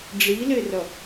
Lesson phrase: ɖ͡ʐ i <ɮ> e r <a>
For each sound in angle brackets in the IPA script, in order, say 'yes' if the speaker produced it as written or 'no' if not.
no, no

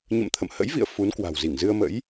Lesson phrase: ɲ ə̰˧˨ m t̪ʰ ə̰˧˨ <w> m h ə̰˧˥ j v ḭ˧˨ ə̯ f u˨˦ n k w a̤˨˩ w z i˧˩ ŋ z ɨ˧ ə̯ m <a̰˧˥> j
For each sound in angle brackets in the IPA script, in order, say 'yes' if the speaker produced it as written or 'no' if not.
no, no

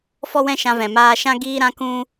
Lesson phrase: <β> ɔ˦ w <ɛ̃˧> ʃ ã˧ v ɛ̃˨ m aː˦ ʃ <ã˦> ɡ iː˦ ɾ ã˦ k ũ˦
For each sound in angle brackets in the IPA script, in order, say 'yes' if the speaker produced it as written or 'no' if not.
no, no, yes

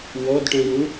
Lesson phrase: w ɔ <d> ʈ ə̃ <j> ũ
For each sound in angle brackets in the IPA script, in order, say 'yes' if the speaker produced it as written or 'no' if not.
yes, yes

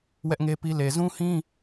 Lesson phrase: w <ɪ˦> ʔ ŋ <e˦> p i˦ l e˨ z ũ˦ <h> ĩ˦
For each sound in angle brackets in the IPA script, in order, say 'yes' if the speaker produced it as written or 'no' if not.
no, yes, yes

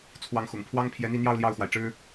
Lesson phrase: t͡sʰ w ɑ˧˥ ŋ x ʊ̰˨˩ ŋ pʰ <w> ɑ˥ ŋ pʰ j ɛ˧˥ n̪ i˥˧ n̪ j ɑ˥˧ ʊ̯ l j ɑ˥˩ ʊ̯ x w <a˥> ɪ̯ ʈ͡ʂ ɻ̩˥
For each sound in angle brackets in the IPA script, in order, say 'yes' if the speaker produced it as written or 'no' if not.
yes, no

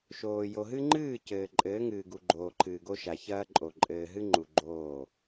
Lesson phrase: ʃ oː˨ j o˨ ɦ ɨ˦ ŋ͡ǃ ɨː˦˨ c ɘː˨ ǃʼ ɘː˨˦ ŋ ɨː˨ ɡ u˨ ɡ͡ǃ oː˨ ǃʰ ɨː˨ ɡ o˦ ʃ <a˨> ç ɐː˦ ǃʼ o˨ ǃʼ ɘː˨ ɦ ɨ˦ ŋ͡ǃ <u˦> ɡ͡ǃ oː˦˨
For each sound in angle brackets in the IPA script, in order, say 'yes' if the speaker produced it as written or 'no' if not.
yes, no

